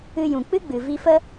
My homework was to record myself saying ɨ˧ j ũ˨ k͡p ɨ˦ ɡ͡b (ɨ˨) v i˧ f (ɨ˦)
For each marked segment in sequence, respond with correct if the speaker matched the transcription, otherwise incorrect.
correct, incorrect: ə˦

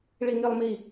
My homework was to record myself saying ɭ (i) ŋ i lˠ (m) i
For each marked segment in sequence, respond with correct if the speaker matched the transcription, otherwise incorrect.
correct, correct

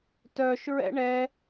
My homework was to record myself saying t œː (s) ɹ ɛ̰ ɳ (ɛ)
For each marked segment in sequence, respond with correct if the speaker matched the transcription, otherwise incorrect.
incorrect: ʃ, correct

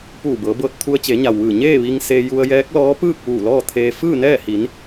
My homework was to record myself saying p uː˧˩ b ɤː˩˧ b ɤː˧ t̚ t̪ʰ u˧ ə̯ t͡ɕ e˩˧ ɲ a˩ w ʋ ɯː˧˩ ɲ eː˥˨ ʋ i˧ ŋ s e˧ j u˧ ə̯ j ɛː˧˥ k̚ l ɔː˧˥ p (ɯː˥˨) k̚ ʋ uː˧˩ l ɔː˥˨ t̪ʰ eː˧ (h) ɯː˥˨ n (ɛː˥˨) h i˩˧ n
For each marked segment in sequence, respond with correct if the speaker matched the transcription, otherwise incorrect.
correct, incorrect: f, correct

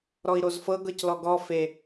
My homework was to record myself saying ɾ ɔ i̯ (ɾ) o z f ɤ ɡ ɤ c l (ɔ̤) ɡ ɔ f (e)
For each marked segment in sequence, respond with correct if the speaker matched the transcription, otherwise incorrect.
correct, incorrect: ɔ, correct

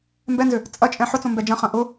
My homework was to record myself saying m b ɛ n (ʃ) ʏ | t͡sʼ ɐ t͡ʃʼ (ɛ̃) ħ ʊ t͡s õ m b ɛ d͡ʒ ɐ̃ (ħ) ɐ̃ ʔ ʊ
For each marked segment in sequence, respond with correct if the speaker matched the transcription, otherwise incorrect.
incorrect: z, correct, incorrect: χ

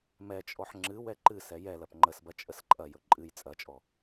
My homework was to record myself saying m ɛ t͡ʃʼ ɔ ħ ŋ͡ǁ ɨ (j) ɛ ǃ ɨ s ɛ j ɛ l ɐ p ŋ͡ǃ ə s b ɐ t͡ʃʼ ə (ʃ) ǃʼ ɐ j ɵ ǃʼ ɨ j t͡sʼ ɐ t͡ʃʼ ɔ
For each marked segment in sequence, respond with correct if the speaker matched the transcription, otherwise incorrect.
incorrect: w, incorrect: s

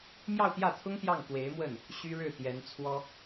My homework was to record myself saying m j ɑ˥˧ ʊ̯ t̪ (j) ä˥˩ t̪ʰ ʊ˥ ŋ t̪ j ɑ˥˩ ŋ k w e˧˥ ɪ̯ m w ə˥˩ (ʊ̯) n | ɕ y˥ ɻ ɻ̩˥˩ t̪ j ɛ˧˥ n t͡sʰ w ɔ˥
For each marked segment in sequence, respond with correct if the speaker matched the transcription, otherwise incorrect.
correct, incorrect: none

